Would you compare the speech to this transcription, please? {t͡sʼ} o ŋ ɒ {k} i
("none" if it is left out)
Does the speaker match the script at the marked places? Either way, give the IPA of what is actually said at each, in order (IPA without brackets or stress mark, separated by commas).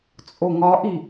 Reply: t͡sʼ, ʔ